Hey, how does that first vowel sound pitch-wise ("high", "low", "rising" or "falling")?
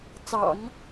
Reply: low